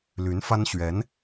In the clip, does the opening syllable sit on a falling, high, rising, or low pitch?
rising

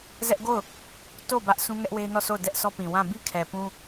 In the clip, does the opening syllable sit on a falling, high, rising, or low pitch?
high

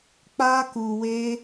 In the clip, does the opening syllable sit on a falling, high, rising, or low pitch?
high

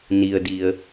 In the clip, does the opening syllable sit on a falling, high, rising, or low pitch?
low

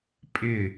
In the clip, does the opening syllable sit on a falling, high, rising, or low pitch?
falling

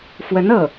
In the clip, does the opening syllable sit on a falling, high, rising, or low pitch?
rising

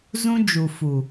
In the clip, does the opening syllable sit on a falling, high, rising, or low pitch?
high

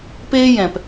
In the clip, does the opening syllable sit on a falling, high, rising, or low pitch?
high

